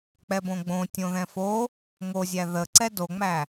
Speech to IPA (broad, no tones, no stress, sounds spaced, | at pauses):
k͡p ɛ b õ ɡ͡b õ tʲ õ ð ɛ̃ f o | ŋ o zʲ æ ð ə ǀ ɛ d o ŋ͡m æ